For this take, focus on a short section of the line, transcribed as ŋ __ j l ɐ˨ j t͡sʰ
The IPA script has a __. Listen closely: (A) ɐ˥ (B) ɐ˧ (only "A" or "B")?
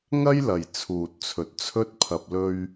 A